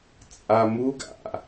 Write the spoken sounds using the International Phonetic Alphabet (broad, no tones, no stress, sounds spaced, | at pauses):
t͡sʼ a m u ɡ a̰